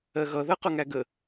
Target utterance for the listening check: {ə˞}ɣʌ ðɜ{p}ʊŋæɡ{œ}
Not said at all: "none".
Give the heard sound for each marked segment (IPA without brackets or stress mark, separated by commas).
ɜ, q, ə